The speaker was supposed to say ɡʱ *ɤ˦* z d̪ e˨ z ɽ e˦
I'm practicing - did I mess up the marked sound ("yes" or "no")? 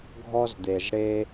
yes